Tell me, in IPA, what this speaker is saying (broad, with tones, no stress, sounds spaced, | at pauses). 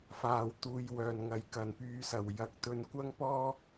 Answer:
f aː˨˩ w t̪ uː˨ j w œː˨˩ n ŋ ɐ˨˩ j k ɐ˨˩ n p yː˨˧ s ɐ˨˩ w j ɐ˨˥ k̚ t̪ ɵ˧ n kʷ ɐ˥ ŋ p ɔː˥